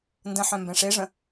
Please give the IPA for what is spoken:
n d ə̃ ħ œ̃ m b ɛ̃ ʂ e ʐ ə̃

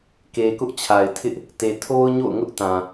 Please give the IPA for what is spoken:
k e˨ k ʊ˦ ʔ t͡ɕʰ a˨ ɪ̯ tʰ ɪ˦ ʔ | t e˨ tʰ o˦ ʊ̯ ɲ o̰˦˨ ʊ̯ ŋ ʊ˦ ʔ t ã˨

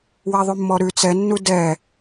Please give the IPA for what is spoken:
w ɛ ðˤ ʉ mː ɔ ɾ ʉ t͡s ɛ nː u d ɛ

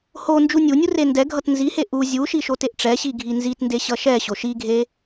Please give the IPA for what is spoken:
h o n d͡ʒ u nʲ u nʲ u r e n d ɛ ɡʱ ʌ t n z i h e ʔ u zʲ u ʃ i ʃ o t e ʔ ʈ͡ʂ ɛ ɕ i ɡʱ i n z i t n d e ɕ ʌ ʃ ɛ ɕ o ʃ i ɡʱ e

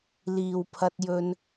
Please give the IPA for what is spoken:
l iː˨ w pʰ ɐ˧ t̚ j ɵ˧ n

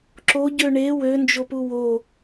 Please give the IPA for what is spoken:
ǁ o ɟ ø ɳ e w ø n d͡ʒ o p u w o

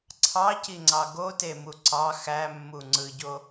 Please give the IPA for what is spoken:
ǀʰ ɑ c i ŋ͡ǀ ɑ ɡ o t e m u ǀ ɑ x æ mː u ŋ͡ǀ ɯ ɟ o

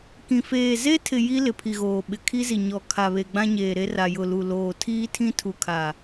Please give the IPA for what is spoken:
k ĩ˨ f eː˨ z e˦ tʰ ɪ˨ j i˦ l ɪ˨ pʰ i˨ ɣ oː˨ ɓ ɪ˨ kʰ i˦ z i˨ ɲ ɔ˨ kʰ a˨ β e˨ ɡ͡b ã˦ ɲ eː˨ ɾ e˦ r a˨ j ʊ˨ l u˨ l oː˨ tʰ iː˦ tʰ ĩ˦ tʰ u˨ kʰ a˨

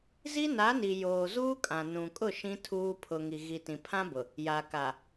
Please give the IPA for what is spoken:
z i˦ n a˨˦ n i˨ j oː˨ z uː˦ kʼ ã˨ n ũ˨ kʼ ʊ˦˨ ʃ ĩ˦ tʰ uː˦ pʰ ʊ˨ ŋ i˨ ɣ i˨ t ĩ˨ pʰ ã˦ b ʊ˨ | j a˨ k a˨

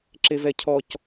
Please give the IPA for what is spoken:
ǁ e v ɛ cʰ ɔ c

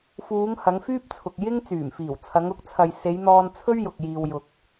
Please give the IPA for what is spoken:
f uː˨˧ ŋ h ɐ˨˧ ŋ f yː˥ p̚ t͡sʰ ʊ˨ k̚ j ɪ˥ ŋ t͡s yː˨˩ m f iː˨˩ w t͡sʰ ɐ˨˧ ŋ ʊ˨˥ k̚ t͡sʰ ɐ˨ j s e˨˧ j n̪ ɔː˧ n t͡sʰ ɵ˥ ɥ j ʊ˨ k̚ j iː˨ w j ʊ˨ k̚

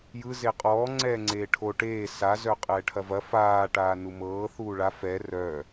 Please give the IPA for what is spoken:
j ɯ z e qʼ ɔː ŋ͡ǀ ɛː ŋ͡ǀ eː ʈʰ o ʈ eː s a z œ qʼ ɛː ʈʰ ɐ v ɐ f aː ʈ aː n u m ɤː θ uː ɭ a f ɛ r œ

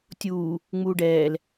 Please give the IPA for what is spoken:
tʲ uː | ŋ͡m uː ɖ ɛː l

